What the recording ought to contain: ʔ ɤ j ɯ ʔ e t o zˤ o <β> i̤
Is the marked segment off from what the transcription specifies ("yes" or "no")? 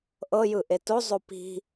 yes